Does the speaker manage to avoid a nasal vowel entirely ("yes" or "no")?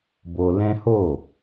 no